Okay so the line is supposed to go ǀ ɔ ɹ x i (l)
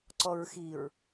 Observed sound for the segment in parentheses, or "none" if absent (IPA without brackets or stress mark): ɹ